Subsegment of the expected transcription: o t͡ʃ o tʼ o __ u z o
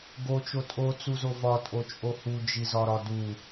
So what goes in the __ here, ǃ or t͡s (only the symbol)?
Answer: t͡s